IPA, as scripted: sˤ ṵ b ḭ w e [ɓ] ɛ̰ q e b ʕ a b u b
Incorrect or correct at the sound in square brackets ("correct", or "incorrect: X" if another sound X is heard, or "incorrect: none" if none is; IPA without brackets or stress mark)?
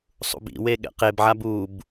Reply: incorrect: ɠ